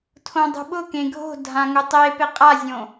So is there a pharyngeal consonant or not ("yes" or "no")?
no